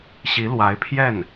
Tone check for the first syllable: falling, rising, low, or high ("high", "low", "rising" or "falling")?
rising